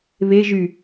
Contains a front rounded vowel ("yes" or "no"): yes